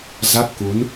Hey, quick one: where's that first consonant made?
tongue tip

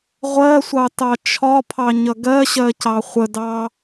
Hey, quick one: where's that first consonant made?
uvula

